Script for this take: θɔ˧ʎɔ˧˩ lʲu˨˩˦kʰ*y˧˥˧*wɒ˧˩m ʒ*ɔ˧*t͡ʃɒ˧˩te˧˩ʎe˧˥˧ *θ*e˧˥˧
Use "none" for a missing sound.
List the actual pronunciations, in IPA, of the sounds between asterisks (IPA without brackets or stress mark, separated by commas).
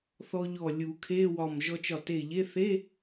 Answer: e˧˥˧, ɔ˧, θ